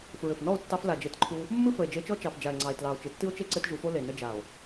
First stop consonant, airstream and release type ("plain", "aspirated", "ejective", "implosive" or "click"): plain